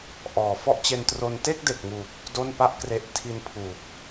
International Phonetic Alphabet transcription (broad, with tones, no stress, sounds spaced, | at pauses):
ʔ ɔː˩˦ f ɔ˦˥ ʔ t͡ɕ e˧ n t r o˧ n t e˥˩ k̚ d e˨˩ k̚ ŋ uː˨˩ p̚ | d o˥˩ n p a˥˩ ʔ k r e˦˥ ʔ tʰ i˧ n pʰ uː˨˩ k̚